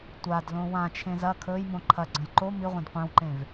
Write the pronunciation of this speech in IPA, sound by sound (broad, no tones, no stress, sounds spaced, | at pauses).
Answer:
tʷ a d l õ w ã t͡ʃʰ ẽ z ɐ kʰ ɵ j m õ ǃʰ ɐ ɡ͡ǀ ɐ̃ j ǃ o m i ʁʷ ẽ d qʷ ẽ w ǃ ẽ v